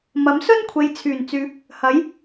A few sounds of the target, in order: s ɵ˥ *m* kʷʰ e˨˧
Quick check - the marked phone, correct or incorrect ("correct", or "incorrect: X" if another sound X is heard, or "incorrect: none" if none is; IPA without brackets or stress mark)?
incorrect: n